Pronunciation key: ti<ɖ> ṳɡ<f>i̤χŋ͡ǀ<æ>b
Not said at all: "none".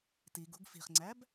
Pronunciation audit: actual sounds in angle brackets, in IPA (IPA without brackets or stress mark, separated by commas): ɡ, f, æ